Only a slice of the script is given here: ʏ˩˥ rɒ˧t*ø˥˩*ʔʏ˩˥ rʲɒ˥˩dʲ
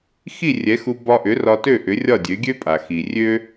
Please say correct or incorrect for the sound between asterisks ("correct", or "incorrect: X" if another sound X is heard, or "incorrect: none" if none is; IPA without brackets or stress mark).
correct